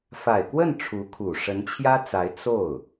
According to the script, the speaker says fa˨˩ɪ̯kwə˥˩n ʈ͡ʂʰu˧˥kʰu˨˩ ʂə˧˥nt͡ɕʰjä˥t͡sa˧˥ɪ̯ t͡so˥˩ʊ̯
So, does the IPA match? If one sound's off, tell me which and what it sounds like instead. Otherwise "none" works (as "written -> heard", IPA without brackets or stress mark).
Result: none